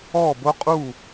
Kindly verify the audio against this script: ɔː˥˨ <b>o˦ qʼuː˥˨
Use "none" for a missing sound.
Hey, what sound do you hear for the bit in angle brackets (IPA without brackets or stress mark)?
b